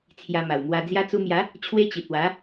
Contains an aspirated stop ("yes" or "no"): yes